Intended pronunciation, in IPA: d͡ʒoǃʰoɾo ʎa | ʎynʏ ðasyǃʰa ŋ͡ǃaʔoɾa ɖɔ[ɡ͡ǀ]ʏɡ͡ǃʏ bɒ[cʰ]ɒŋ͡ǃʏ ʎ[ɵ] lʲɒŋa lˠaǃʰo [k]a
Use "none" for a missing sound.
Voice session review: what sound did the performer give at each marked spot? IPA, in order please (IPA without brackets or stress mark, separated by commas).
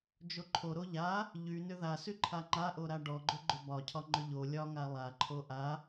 ɡ͡ǃ, cʰ, o, ʔ